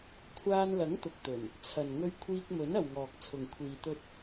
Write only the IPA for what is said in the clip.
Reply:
kʷʰ aː˧ n l ɐ˨˥ ŋ t̪ ʊ˨ k̚ t̪ ɵ˨˩ n | t͡sʰ ɐ˨ n ŋ ɵ˧ ɥ kʷʰ iː˧ k̚ m ɵ˨˥ n ɐ˨ w ŋ ɔː˨ k̚ t͡sʰ ʊ˨ ŋ kʷʰ iː˨ t̪ ɵ˧ t̚

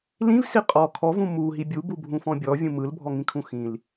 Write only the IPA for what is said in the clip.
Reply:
l ĩ v s i qʼ ɔ kʰ ɔ v ũ m u ɦ i bʲ u b u bʱ ũ f ɔ̃ bʲ ɔ vʲ ũ m ɯ l bʱ ɔ ŋ ĩ kʰ ũ x ĩ l

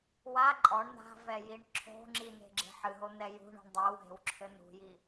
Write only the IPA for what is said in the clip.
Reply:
w a ǃʼ ɔ ɳ n̪ a̤ v ɛ j i ɳ ǁʰ o̤ ŋ͡ǁ i n̪ e̤ ɡ͡ǁ e̤ ħ ɨ ɦ o n̪ ɛ j ṳ ɳ ṳ ɳ dˤ e w ɦ e̤ w ǁʰ ɘ n ṳ j i

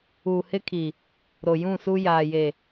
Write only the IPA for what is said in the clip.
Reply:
uː˨ h ɪ˦ kʰ i˨ | ɾ o˨ j ũ˦˨ s u˦ j aː˨ j e˨

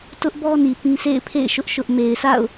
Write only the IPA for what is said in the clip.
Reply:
t ʊ˦ ʔ b ɔ˦ n i˨ p ĩ˦ sʰ ḛ˦˨ ɪ̯ pʰ ḛ˦˨ ɪ̯ ʃ ʊ˦ ʔ ʃ ʊ˦ ʔ m e˨ ɪ̯ s a̰˦˨ ʊ̯

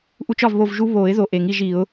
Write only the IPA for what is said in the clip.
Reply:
ʔ u˦ t͡ʃ ɒ˥˨ v β o˥˨ v ʒ u˦ β o˨˩˦ ɪ̯ ð o˧˩ ʔ e˨˩˦ ŋ i˥˨ ʒ i˨˩˦ ʊ̯

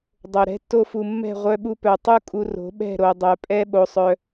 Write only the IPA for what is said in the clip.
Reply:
dˤ o˨ ɾ ɛ̤˧ tː o˧ f u˨ mː ɛ̤˦˨ ʁʷ œ˧ ɓ u˦ p œ˧ tˤ u˦ kʼ u˧ r o̤˨˦ ɓ ɛ̤˦˨ ɾ o˨ dˤ œ˨ pʼ ɛ˦ ɓ o˧ sˤ œ˧

